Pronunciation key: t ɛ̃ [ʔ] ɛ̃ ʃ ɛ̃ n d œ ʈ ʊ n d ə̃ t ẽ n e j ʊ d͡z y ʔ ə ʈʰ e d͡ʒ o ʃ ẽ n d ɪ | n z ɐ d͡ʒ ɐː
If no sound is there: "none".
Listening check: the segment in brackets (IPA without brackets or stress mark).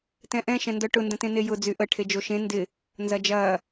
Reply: ʔ